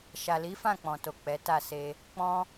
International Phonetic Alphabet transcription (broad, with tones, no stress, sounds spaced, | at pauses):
ʃ a˨ l i˨˦ f ã˦˨ k͡p ɔ̃˨ t o˨ k͡p ɛ˨˦ t a˦˨ s e˧ | k͡p ɔ̃˦